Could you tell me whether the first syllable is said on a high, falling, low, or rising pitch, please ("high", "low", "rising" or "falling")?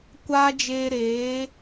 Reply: high